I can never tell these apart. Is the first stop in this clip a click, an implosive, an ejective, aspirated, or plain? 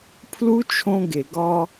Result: aspirated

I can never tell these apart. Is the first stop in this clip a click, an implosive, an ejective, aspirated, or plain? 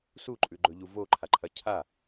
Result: click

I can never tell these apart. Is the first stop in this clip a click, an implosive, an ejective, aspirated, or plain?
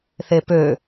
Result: plain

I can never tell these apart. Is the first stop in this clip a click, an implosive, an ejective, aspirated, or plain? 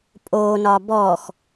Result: ejective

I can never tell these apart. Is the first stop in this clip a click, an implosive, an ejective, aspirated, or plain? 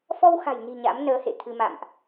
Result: aspirated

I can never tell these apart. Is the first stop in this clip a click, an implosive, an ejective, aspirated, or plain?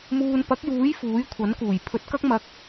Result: plain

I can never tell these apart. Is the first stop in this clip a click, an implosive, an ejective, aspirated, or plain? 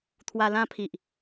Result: aspirated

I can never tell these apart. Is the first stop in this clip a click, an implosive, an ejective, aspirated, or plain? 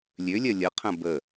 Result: aspirated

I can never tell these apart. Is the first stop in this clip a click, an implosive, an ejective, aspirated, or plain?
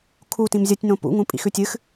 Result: aspirated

